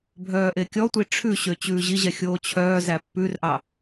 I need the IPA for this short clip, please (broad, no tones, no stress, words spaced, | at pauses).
bʱœːʔekʲɔtʷi ʈ͡ʂʰʉɕø t͡ɕʉːʑiʑɛ xʲoːt͡ɕʰœːzæ pːʉrʔɑ